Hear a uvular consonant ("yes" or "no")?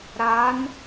no